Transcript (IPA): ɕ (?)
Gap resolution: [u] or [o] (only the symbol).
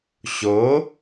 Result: o